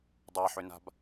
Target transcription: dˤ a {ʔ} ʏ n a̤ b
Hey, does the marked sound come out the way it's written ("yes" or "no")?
no